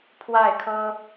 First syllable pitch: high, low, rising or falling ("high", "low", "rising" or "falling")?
falling